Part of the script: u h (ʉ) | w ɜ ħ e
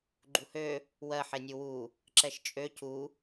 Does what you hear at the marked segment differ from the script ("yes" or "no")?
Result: yes